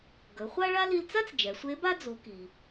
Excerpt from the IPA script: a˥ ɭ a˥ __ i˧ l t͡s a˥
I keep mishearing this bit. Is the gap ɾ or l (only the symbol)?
l